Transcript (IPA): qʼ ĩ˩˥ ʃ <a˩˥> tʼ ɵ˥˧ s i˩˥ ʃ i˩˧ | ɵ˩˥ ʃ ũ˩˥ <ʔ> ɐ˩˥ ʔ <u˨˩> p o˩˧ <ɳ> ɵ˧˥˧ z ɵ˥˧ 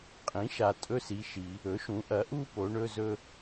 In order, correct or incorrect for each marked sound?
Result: incorrect: a˨˩, correct, incorrect: u˥˧, correct

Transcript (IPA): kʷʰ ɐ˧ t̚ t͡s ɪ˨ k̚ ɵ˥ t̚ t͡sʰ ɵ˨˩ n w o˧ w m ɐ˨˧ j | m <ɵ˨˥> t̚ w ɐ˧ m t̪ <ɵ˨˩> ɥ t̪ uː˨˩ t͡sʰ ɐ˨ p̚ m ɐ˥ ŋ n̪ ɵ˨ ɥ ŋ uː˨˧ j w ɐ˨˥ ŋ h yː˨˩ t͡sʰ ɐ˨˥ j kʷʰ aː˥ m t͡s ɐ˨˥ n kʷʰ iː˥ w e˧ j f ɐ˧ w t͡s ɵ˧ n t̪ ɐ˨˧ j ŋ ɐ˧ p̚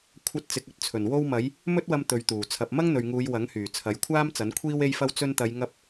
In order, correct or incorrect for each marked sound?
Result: incorrect: ɵ˥, incorrect: ɵ˨˧

